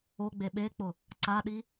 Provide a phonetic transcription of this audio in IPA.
oɡ͡be ɓek͡pʊ | ǀaɗi

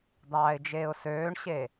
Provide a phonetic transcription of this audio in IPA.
d̪ɑːɪ̯d͡ʒeːʊ̯søːɳɕe

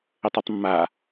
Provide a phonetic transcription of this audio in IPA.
ʏtˤotˤmːa

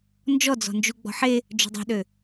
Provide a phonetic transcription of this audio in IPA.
nd͡ʒɔd͡zɔ̤nd͡ʒu ɡ͡bɔ̤ħe | d͡ʒo̤dˤe̤ɗø

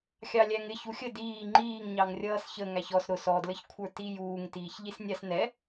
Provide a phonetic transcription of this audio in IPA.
xʲɑlʲæŋɪ çuxʲə diː ŋ͡ǃiːŋɲɑŋ rʲʌːsçə ŋæçɔs ɾʊs ɔdləçkʷʰə˞ti juːŋtiːçʎis nʲɑsnɛ

